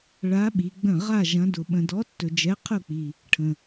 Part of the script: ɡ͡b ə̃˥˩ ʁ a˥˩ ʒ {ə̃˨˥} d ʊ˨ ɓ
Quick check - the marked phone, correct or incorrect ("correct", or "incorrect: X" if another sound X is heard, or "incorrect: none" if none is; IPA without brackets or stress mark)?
incorrect: ɐ̃˨˥